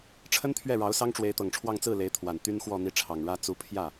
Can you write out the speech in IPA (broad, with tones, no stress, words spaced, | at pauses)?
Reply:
ʈ͡ʂʰə˥nt̪ʰɥɛ˥˩ ɻɑ˧˥ʊ̯sɑ˥ŋʈ͡ʂwe˧˥ɪ̯ t̪ɤ˨˩ŋʈ͡ʂʰwɑ˥˧ŋ t͡sɹ̩˥˩ le˧˥ɪ̯t̪ʰwa˨˩n t̪y˥nxwɔ˥˧ n̪i˥˩ʈ͡ʂʰɑ˨˩ŋɻä˥ t͡su˧˥pʰjä˥˩